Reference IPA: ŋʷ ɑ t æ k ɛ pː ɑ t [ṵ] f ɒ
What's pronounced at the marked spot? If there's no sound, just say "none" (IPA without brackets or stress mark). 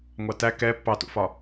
ṵ